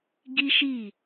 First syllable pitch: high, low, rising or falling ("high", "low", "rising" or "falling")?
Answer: high